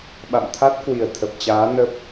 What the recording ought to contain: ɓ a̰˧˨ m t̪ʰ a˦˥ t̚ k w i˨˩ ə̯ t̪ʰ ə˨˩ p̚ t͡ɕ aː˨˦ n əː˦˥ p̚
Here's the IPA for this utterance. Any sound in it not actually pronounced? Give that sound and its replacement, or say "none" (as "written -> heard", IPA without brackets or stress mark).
əː˦˥ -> ə˦˥